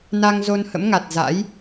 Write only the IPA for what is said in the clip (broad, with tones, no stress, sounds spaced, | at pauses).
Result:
n a˧ ŋ z o˧ n h ə̰˧˥ m ŋ a˨˩ t̚ z a̰˧˥ j